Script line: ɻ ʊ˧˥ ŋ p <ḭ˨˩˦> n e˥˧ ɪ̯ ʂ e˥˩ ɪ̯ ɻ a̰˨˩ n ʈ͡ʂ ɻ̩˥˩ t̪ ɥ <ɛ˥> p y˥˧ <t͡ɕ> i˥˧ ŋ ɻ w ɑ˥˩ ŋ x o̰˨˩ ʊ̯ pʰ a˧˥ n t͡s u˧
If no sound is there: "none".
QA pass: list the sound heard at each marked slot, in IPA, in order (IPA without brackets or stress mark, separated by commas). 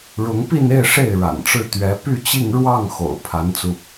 i˥˧, ɛ˧˥, t͡ɕ